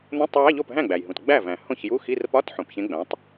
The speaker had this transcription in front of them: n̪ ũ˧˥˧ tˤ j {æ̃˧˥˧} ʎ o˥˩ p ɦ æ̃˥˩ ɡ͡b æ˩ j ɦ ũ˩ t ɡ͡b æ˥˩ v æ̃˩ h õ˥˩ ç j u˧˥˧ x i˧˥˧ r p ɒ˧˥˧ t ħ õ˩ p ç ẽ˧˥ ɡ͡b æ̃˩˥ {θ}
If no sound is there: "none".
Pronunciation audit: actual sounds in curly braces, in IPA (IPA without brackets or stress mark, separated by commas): æ˧˥˧, tˤ